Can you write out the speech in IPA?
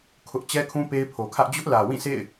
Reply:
kʰ ʊ˦ ʔ t͡ɕ ɛ˦ kʰ ũ˦ p e˦ ɪ̯ pʰ o˨ kʰ ä˦ ʔ d͡ʑ ʊ˦ ʔ l ä˨ w ĩ˦˨ sʰ ḛ˦˨ ɪ̯

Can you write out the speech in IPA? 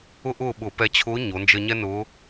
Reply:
ʊ˥ ʔ ʊː˥˨ ɓ ʊ˧˩˧ p ɛ˧ t͡ɕʰ ʊː˧˥ ɲ o˩˧ n d͡ʒ ə˧ ɲ ɛ˥ n ʊː˧˥

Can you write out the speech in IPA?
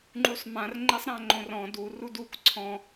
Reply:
ŋ͡ǃ u sˤ m ã r ŋ͡ǃ e sˤ ɾ ã ŋ͡ǃ õ r ɔ̃ d u r u d u k ǀʰ ɔ̃

